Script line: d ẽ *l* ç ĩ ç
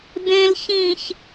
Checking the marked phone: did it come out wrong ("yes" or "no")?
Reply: no